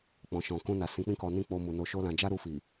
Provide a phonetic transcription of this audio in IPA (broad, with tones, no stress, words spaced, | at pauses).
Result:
k͡pɔ̃˨ʃɔ̃˨ kũ˧na˨ sĩ˨˦k͡pĩ˦kɔ˧ nĩ˦k͡po˧ mu˨ no˧ʃo˦lã˧ d͡ʒa˦ɾu˧fi˨